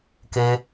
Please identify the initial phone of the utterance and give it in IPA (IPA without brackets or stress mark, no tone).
k